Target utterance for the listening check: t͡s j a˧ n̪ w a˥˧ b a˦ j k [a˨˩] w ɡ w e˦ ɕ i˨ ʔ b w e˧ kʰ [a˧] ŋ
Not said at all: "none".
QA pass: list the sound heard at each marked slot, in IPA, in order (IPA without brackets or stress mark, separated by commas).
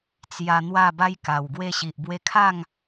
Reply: a˨˩, a˥˧